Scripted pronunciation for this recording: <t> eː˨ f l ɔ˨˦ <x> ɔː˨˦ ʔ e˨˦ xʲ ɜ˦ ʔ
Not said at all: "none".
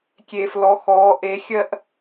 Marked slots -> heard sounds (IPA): kʲ, x

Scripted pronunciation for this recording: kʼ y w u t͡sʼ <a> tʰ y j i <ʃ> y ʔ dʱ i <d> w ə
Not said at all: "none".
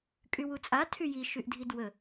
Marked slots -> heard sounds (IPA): a, ʃ, d

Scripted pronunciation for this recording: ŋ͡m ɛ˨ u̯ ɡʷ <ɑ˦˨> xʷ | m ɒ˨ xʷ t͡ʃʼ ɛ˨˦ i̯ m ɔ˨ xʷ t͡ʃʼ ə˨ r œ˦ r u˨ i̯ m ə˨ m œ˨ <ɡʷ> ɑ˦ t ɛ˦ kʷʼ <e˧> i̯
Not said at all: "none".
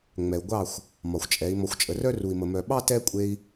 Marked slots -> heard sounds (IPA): ɑ˦˨, ɓ, e˧

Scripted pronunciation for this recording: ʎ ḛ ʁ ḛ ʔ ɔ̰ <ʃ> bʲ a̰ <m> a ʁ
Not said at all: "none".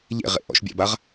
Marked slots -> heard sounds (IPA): ʃ, b

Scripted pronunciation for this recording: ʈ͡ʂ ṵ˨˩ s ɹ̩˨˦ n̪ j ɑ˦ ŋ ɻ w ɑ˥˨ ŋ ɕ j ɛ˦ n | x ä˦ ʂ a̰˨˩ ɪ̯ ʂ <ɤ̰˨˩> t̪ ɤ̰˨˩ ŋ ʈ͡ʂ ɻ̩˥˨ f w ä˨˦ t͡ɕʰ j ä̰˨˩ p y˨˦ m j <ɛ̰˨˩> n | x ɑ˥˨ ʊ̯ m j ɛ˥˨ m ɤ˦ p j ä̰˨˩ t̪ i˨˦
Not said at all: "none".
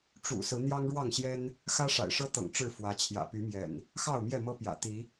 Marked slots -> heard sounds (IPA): ɤ˦, ɛ̰˨˩

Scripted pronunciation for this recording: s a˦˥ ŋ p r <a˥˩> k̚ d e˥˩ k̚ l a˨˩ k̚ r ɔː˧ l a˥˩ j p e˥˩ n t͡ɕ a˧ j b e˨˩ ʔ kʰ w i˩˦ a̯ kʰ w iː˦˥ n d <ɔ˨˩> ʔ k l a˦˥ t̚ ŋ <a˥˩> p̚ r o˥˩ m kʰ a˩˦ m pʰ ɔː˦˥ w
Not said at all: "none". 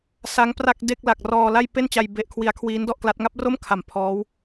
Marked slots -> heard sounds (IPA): a˥˩, ɔ˥˩, a˦˥

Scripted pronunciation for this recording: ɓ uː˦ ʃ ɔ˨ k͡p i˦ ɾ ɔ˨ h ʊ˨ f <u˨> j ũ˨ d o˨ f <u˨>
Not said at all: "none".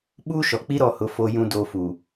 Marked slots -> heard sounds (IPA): o˨, u˨

